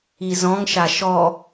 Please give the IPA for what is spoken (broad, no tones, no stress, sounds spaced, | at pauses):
i z ɔ̃ ŋ ʃ a ʃ ɔ